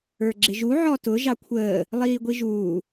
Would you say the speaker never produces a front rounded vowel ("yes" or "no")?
yes